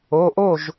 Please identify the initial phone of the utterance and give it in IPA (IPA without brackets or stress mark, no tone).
o